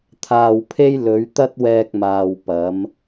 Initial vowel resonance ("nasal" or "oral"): oral